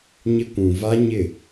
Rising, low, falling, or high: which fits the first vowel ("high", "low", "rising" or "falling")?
high